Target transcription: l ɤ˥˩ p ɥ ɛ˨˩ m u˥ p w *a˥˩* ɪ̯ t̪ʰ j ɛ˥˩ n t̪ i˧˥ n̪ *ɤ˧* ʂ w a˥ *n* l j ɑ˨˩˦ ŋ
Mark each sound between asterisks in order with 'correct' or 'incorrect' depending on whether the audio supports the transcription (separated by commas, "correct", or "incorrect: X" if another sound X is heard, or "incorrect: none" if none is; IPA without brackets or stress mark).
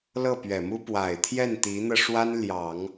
incorrect: a˨˩, correct, correct